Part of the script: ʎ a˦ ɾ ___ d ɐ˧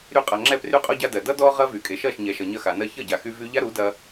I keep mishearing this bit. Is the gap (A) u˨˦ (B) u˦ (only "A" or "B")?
A